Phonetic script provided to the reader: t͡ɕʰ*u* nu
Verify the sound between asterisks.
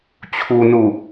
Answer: correct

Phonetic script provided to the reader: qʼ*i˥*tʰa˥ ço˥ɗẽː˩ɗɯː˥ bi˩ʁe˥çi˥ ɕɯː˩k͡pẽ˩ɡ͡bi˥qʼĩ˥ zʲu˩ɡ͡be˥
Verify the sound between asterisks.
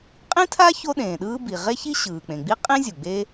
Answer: incorrect: ĩ˥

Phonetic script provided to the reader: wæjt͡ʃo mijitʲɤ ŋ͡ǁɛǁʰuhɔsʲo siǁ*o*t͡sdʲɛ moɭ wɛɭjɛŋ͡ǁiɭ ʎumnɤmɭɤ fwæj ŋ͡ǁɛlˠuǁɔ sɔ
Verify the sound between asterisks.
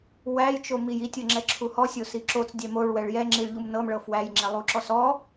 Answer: correct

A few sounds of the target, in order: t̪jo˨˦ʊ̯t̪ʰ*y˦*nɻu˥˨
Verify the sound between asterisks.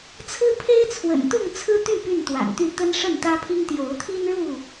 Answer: incorrect: i˦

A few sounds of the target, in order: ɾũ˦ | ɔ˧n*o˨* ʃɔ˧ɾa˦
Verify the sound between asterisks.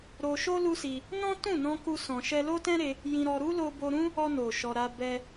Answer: correct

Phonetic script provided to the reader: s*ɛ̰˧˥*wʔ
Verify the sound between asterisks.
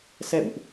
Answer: incorrect: ɛ̰˧˨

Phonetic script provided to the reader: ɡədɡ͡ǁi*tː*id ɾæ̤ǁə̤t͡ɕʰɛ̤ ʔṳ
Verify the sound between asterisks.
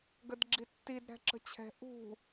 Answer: correct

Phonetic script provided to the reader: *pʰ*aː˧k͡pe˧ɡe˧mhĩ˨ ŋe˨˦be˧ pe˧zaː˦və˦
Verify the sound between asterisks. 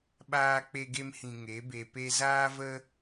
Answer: incorrect: ɓ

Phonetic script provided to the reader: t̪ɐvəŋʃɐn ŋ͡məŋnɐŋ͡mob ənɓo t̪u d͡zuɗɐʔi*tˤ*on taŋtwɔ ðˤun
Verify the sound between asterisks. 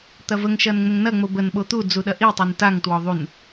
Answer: correct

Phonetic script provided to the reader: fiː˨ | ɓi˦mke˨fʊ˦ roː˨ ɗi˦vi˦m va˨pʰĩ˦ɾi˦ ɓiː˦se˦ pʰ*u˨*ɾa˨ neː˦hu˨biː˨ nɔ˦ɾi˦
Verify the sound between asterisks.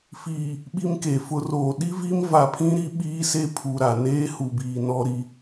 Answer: correct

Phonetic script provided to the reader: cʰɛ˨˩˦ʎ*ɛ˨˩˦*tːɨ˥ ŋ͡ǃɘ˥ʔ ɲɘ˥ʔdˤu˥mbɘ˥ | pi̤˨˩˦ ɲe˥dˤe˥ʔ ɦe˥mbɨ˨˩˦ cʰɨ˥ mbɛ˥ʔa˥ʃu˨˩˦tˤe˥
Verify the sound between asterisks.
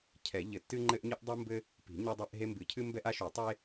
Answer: incorrect: ɘ˨˩˦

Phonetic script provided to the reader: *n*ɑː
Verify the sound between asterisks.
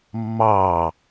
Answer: incorrect: mː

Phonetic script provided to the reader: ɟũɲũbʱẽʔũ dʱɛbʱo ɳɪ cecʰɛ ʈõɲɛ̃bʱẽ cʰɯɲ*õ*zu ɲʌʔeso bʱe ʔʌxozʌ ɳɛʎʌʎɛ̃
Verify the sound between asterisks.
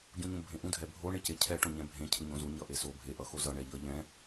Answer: correct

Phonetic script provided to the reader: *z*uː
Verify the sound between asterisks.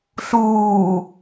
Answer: incorrect: ɬ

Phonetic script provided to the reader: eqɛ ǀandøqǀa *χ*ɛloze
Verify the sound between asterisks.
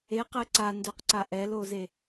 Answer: incorrect: ʔ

